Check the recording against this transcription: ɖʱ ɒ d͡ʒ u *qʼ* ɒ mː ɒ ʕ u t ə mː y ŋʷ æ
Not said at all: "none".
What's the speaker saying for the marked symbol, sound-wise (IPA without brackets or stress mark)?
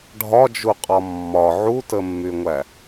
qʼ